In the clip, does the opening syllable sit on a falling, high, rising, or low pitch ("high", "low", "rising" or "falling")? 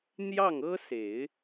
falling